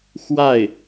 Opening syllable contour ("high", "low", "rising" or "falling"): falling